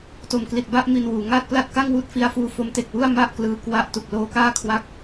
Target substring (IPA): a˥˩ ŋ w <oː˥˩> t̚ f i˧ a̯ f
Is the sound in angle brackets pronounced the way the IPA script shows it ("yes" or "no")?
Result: no